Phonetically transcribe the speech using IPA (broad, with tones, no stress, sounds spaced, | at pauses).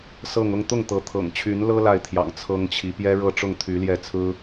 s ɤ˥˧ ŋ ʊ˥˧ ŋ t̪ ʊ˥˩ ŋ t̪ ɤ˧˥ t̪ʰ ɤ̰˨˩ ŋ t͡ɕʰ y˧˥ n l ɤ˥ l a˥˩ ɪ̯ t̪ʰ j ɑ̰˨˩ ŋ t͡sʰ ɤ˥ ŋ t͡ɕʰ i˧˥ p j ɛ˥ ɻ ɤ˥˧ ʈ͡ʂ ʊ˥˩ ŋ t̪ʰ y˧˥ l j ɛ˥˩ t͡sʰ ɹ̩˥